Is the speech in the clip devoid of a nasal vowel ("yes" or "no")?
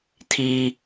yes